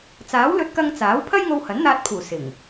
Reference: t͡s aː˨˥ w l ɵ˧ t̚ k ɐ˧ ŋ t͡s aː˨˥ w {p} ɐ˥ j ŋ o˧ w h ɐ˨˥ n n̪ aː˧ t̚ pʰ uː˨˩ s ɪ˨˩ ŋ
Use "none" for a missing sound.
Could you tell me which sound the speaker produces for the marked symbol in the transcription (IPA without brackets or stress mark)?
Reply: pʰ